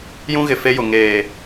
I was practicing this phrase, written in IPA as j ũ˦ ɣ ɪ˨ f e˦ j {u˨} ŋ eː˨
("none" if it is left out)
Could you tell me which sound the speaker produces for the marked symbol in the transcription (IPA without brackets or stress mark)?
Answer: ʊ˨